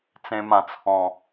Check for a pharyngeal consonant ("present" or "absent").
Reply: absent